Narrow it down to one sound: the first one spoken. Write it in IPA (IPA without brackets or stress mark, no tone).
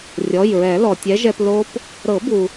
rʲ